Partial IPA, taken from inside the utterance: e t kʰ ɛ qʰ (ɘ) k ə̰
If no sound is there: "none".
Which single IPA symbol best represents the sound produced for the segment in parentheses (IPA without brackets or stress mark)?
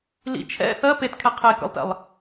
e